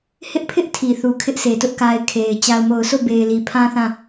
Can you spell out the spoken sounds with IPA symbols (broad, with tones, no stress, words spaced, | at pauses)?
hɪ˦ʔpʰɪ˦ʔ tʰi˨θu˨kʰɪ˦ʔ sʰe˨tʊ˦ʔka˦ɪ̯ kʰe˨ɪ̯ t͡ɕa˨ʊ̯mo˨ʊ̯so˦˨ be˨ɪ̯li˨pʰã˦θã˦˨